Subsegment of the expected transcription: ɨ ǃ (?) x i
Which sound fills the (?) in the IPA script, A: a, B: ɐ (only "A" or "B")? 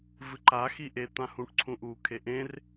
A